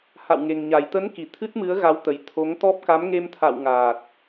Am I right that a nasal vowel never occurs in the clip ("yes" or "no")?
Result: yes